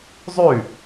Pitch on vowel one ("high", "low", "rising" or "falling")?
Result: falling